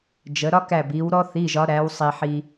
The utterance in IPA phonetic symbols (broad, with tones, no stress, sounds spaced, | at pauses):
d͡ʒ ə˩˧ ɾ ɒ˦ k æ˧˩ b i˩˧ w ɾ ɔ˦ θ i˩˧˩ ʒ ɒ˩˧ ɾ æ˩˧ w sˤ i˩ ħ i˩